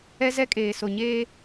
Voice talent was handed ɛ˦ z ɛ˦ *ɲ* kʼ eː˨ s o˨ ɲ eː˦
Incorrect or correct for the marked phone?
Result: incorrect: none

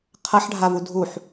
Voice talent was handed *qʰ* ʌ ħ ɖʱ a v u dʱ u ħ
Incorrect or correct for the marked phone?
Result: correct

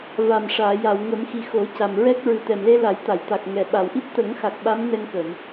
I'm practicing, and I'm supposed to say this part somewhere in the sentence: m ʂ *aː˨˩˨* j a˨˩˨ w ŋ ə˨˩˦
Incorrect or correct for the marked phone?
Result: correct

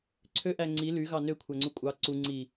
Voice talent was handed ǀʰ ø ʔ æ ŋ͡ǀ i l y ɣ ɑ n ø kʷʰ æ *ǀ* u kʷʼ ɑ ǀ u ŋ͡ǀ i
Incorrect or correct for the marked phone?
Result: incorrect: ŋ͡ǀ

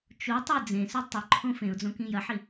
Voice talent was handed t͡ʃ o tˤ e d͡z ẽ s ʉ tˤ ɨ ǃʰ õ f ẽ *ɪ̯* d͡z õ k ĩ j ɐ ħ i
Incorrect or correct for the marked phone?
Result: incorrect: ʊ̯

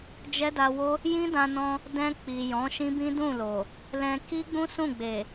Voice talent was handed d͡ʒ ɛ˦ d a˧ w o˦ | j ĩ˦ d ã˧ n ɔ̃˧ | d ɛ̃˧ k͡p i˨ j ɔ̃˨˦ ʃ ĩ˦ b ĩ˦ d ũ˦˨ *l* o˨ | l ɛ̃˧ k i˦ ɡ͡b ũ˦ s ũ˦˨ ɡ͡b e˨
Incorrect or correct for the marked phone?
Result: correct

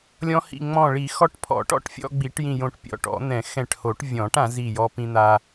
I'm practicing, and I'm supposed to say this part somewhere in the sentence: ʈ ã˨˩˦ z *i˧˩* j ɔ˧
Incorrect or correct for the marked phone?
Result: correct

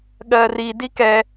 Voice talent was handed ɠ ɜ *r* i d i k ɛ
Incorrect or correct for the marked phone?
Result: correct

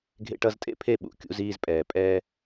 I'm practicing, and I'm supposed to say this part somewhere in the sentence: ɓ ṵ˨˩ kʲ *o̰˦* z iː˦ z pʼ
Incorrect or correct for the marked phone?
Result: incorrect: ṵ˦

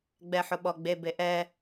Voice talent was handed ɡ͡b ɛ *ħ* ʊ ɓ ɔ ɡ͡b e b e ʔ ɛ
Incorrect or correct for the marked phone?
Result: correct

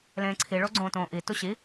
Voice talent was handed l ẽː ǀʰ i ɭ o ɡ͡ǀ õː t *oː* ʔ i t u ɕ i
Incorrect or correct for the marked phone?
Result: incorrect: õː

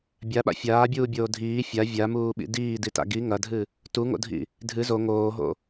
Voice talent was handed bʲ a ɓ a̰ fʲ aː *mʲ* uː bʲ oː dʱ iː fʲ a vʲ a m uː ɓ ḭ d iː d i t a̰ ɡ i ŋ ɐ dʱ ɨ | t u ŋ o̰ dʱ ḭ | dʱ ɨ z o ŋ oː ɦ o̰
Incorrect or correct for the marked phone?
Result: incorrect: bʲ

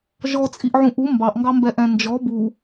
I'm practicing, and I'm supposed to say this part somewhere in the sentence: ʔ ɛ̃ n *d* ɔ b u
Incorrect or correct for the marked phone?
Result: incorrect: d͡ʒ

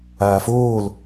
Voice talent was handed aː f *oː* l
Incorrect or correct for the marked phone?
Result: correct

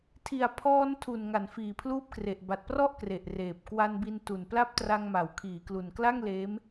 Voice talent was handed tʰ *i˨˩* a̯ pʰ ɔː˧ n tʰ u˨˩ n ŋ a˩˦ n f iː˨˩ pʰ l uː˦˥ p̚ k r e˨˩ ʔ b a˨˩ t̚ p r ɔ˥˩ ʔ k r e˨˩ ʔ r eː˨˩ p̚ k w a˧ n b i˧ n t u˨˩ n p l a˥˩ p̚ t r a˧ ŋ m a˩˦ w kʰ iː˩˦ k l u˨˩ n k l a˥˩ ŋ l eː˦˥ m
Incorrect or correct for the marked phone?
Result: correct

